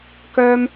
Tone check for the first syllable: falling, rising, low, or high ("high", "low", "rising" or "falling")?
high